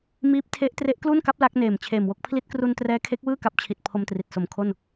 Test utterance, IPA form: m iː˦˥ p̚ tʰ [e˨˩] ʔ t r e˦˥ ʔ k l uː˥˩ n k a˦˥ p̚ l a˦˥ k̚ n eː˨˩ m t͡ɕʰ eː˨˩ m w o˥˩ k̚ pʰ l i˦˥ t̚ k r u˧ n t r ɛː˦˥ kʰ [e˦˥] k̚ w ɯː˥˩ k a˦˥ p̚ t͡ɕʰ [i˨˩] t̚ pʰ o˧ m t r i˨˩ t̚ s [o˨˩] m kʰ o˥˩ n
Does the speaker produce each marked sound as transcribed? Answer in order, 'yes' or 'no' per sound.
no, yes, yes, yes

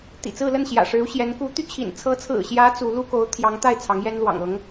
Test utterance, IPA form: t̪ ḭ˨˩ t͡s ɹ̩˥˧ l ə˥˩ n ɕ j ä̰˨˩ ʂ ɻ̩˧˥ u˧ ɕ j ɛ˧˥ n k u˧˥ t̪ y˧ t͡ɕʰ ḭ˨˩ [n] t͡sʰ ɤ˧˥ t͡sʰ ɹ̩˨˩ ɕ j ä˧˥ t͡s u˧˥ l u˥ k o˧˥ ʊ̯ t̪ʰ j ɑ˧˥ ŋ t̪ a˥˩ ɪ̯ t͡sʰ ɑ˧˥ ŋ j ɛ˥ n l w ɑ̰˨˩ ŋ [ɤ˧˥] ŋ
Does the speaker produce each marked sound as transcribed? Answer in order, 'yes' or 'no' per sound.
yes, yes

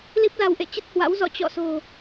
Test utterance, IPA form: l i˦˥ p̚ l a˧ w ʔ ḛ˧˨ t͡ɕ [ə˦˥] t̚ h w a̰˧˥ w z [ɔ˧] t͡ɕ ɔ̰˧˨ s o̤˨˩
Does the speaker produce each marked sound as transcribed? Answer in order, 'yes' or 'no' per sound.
yes, no

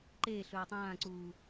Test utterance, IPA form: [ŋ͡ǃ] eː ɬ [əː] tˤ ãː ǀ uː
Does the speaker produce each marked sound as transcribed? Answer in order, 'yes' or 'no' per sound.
no, no

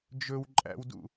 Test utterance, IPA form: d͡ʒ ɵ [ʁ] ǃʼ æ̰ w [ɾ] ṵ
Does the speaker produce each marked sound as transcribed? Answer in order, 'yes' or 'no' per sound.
no, no

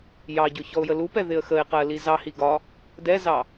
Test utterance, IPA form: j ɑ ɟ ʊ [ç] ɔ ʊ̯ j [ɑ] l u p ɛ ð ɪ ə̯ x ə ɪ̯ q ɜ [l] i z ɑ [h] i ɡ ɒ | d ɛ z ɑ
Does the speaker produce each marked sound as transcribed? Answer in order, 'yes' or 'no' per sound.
yes, no, yes, yes

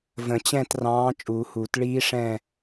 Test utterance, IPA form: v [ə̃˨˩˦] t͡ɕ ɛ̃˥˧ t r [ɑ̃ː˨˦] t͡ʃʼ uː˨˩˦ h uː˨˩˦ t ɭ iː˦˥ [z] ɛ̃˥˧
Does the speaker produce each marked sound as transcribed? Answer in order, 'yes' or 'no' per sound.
yes, yes, no

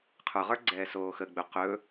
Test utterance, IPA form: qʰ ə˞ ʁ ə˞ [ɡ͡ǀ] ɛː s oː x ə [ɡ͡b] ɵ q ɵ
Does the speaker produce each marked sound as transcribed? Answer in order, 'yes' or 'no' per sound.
yes, yes

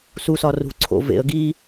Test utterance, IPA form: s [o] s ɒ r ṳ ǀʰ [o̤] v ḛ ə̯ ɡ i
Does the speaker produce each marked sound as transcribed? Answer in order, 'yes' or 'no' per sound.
no, no

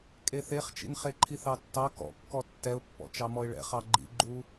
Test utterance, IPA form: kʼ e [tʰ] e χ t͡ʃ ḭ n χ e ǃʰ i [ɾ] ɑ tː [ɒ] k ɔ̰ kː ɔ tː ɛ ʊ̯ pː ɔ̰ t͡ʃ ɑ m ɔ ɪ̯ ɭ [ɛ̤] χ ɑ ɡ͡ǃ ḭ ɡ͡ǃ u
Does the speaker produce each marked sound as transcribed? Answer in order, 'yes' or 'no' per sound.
no, no, no, no

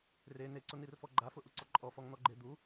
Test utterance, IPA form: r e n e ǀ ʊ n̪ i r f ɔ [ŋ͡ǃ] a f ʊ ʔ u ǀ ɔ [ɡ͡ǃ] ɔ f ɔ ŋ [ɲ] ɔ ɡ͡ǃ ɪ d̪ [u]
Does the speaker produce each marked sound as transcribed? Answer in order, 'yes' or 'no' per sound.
no, no, no, yes

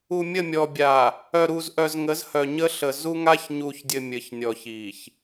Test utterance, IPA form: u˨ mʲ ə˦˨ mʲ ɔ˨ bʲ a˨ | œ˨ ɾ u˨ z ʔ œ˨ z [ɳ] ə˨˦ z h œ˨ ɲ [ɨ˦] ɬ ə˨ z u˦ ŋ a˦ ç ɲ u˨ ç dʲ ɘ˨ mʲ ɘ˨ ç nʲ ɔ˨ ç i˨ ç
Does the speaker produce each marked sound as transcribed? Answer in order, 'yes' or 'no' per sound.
no, no

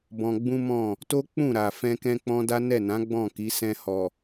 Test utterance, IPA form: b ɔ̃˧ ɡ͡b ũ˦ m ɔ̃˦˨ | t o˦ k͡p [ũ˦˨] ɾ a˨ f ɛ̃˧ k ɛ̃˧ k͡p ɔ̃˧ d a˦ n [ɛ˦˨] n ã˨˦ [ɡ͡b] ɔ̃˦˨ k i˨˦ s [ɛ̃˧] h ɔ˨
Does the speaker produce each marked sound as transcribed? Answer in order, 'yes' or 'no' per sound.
yes, yes, yes, yes

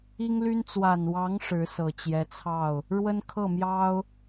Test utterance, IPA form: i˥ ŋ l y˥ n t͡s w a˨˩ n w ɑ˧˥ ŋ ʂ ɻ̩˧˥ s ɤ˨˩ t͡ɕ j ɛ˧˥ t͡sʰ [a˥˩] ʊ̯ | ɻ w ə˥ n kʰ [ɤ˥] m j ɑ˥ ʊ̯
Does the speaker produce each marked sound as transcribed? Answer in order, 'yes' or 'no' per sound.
no, no

